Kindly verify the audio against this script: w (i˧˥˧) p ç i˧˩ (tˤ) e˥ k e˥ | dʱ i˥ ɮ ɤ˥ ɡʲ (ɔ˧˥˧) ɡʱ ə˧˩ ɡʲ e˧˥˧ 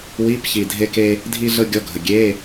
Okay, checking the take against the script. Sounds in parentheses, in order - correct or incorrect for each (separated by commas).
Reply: correct, incorrect, correct